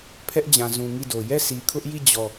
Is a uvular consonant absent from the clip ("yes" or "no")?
yes